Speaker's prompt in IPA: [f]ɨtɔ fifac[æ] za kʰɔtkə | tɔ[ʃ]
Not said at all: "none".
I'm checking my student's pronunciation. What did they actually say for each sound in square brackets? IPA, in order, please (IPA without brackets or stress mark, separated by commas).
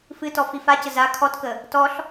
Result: f, ə, ɬ